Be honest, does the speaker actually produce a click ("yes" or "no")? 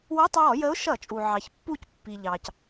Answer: no